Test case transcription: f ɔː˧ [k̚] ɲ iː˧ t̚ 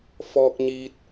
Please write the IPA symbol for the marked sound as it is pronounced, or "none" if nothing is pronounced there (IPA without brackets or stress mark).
k̚